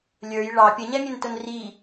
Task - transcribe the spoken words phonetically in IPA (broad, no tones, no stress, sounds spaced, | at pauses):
lʲ ə˞ j ɭ ɑ pʲ ə ɲ ɛ mʲ ə n t ʊ n r i